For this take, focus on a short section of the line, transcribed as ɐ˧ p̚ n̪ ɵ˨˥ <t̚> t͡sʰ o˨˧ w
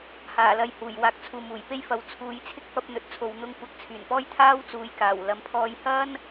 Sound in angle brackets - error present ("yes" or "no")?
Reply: no